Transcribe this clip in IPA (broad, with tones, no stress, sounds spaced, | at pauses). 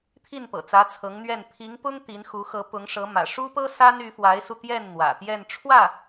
t̪ʰ i˥˩ n p ɤ̰˨˩ t͡s ä˧˥ t͡sʰ ɤ˧˥ ŋ n̪ ɥ ɛ˥˩ n pʰ i˧˥ ŋ p ʊ˥ ŋ t̪ i˧˥ n x u˧˥ x ɤ˧˥ p ʊ˧˥ ŋ ʂ ɤ˧˥ m ä̰˨˩ ʂ u˥ p ɤ˥ s a˥ n y˧˥ f w a˧˥ ɪ̯ s u˧ t̪ j ɛ˥˩ n n̪ w ä̰˨˩ t̪ j ɛ˥˧ n ʈ͡ʂʰ w ä˥˩